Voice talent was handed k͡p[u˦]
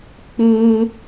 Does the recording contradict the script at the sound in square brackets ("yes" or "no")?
no